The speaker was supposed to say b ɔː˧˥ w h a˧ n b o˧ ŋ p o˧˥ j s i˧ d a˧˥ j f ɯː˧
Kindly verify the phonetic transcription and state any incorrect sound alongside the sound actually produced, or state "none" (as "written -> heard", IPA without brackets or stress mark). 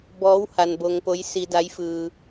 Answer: none